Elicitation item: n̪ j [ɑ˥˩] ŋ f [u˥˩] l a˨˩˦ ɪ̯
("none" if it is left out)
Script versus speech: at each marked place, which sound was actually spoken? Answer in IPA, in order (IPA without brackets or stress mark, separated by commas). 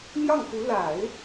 ɑ˥˩, u˧˥